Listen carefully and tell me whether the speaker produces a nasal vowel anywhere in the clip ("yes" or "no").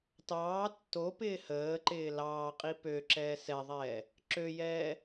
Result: no